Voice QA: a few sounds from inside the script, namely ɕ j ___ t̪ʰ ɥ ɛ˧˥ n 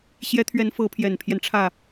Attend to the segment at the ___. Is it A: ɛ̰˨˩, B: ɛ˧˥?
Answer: B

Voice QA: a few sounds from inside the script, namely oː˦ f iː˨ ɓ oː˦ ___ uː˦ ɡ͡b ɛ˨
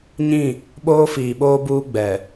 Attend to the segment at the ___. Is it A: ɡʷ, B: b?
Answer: B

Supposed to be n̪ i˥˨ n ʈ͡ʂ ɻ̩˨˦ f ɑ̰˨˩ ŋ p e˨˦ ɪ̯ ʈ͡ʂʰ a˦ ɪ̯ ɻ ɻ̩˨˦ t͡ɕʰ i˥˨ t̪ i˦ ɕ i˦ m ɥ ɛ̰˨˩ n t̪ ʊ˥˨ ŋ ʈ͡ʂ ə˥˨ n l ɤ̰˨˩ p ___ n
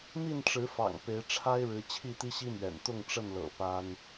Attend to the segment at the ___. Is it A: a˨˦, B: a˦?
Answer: B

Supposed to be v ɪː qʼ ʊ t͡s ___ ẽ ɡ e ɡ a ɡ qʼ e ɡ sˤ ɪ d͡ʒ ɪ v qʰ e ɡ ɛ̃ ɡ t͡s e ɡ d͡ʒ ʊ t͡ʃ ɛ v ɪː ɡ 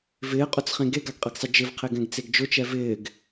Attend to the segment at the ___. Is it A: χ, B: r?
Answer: A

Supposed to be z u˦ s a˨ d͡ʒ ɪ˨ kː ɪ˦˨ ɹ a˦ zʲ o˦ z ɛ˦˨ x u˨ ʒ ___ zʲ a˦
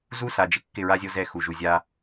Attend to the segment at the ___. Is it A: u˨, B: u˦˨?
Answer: A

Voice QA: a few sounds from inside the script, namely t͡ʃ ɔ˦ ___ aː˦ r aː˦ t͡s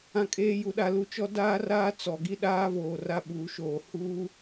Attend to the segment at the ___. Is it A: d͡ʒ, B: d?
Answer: B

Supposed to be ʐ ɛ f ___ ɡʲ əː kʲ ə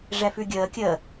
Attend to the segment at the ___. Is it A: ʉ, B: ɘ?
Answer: A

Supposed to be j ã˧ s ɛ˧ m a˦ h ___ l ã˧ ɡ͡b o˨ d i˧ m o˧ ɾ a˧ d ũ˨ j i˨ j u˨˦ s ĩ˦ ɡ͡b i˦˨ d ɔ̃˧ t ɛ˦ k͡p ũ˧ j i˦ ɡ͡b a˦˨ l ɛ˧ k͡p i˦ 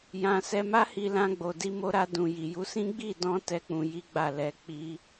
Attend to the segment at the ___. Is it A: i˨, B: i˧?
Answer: B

